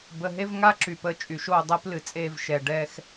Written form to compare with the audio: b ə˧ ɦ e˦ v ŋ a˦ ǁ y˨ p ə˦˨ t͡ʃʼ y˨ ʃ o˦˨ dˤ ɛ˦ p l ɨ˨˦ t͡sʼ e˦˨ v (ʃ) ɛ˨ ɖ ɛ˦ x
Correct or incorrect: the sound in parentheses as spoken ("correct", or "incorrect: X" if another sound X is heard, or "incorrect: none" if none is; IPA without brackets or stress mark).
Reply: correct